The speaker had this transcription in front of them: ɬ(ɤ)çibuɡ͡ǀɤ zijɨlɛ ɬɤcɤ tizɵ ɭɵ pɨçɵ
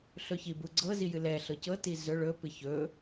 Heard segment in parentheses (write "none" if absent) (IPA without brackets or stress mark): ɵ